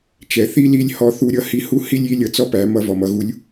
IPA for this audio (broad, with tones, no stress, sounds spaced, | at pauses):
t͡ʃ ɛ˩ θ i˥ l i˧˥ lʲ h ɔ˧ θ u˧˥ ɾʲ ʌ˧˥ h i˧˥ h u˥ h i˥ lʲ i˧˥ lʲ ʌ˧ t͡s ɔ˥ p æ˩˧ m ʌ˧ v ɔ˩ m ʌ˩˧ ɣ u˧˥ lʲ